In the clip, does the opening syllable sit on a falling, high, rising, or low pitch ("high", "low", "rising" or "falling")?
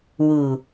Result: low